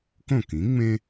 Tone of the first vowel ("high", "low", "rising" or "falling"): falling